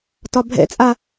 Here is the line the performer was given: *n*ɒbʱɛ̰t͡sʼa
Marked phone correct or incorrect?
incorrect